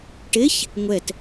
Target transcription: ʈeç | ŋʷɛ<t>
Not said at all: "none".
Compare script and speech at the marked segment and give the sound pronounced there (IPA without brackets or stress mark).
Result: t